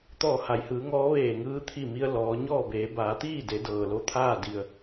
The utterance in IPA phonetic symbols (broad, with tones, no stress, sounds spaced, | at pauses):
t̪ ɔː˧˩ h a˩ j h ɯː˩˧ ŋ ɔː˧˥ ʋ eː˧˩ ŋ ɯː˧ t̪ʰ i˧˩ m i˧ ə̯ l ɔː˩˧ ɲ ɔː˥˨ b eː˩˧ b aː˩˧ t̪ iː˥˨ d e˩˧ d ɤː˩ l o˥˨ t̪ʰ aː˥˨ d i˩ ə̯